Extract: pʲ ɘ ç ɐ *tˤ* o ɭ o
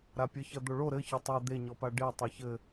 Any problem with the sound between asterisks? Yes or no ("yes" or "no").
yes